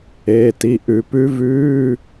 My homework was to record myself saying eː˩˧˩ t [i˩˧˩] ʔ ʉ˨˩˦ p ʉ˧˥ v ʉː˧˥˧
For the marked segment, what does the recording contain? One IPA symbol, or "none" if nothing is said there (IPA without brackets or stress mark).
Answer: i˩˧˩